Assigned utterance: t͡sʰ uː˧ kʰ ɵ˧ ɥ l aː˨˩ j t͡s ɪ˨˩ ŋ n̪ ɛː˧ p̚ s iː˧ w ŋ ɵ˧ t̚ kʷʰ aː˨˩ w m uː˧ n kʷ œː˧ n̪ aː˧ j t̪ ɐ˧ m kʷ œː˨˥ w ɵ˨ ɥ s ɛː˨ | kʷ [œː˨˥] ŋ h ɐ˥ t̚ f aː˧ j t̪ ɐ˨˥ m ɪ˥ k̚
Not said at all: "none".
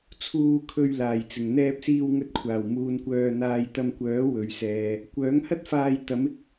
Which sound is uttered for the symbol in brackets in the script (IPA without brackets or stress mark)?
œː˨˥